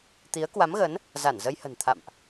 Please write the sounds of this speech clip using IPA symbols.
t̪i˨˦ə̯ kwa˨˦mɣə˨˦n | za˧˩nzə˧jhə̤˨˩n t̪ʰa̰˧˨mʔ

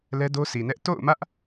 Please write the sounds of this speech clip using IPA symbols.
lɛ˦do˦sʰi˨nɛ˦ʔ to̰˦˨ʊ̯mä˦ʔ

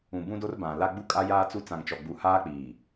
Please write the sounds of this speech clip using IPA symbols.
ũ˨bũ˦do˦r bã˨la˦ ɡ͡bu˦kʼa˦jaː˦t͡su˦ t͡sã˨ŋt͡ʃɔ˨ɡ͡bu˨ haː˦k͡piː˨

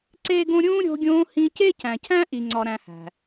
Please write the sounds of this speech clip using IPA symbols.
ǀeː˥ɡõ˥ ɾʲũː˥ ɾʲo̤˦ɡʲõː˦hĩ˦ ce˥cæ̃˨cʰæ̃˥ ʔi˨ŋ͡ǀɒ˨ɾæ̃˨hæ̤˩

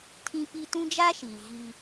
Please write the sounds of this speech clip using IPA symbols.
tʰĩ˦pi˦ tũ˦d͡ʒa˦ʃiː˨ ɣi˦

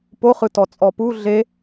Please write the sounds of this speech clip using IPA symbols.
poχɯ tɔt͡sʼɔpu ɮe

